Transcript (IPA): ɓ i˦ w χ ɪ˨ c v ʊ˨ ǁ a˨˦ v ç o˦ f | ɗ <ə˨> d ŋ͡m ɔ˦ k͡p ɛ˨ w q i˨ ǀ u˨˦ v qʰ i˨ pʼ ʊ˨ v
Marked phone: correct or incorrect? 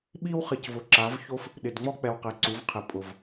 incorrect